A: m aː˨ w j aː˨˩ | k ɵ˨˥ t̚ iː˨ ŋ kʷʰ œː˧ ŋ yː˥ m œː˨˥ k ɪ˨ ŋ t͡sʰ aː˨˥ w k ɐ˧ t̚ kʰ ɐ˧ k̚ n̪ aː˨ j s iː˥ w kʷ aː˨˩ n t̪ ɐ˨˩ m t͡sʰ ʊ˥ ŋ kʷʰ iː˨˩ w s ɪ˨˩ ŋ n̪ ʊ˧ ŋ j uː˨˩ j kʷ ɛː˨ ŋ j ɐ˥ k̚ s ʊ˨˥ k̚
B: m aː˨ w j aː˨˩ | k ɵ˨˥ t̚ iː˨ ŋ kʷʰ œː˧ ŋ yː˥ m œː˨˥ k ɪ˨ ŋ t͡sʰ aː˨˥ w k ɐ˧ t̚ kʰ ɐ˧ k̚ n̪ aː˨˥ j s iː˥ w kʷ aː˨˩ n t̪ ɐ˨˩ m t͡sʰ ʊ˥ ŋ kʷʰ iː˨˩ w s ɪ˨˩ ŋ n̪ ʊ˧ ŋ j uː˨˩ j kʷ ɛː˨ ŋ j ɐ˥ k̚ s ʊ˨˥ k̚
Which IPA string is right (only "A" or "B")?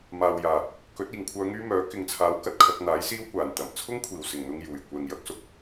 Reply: B